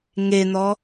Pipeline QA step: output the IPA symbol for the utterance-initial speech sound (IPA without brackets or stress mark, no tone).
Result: ŋ